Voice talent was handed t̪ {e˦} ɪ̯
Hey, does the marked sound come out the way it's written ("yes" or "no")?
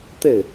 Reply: no